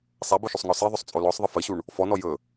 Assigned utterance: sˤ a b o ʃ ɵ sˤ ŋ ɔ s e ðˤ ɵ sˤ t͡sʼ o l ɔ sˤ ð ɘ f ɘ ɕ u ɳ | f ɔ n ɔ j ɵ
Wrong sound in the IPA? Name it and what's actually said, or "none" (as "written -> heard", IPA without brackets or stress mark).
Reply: ð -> ðˤ